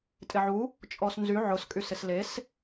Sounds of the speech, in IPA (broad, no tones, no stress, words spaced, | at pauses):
tʼɪʕu | t͡ʃʼɔsnzy ʕʊs kʼysɪsles